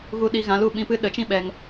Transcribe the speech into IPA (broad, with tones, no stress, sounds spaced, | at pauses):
ɣ u˧ ɗ i˧ ɣ ã˨˦ l u˨ ɓ ĩ˧ p ɨ˦ ɗ ə˨˦ t͡ʃ ĩ˦ ɓ ɛ˧ ŋ